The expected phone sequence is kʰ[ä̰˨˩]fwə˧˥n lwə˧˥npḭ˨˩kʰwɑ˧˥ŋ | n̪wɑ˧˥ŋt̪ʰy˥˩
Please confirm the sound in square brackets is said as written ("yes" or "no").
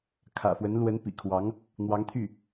yes